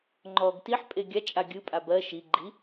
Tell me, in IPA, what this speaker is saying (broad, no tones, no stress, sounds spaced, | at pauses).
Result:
ŋ͡ǃ ɔ ɡ t i ħ pʼ e ɡʲ a t͡ʃʼ a ɡʲ ɯ pʼ a b ɜ ʃ i ɡ͡ǃ i